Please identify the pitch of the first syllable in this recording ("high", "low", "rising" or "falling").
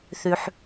low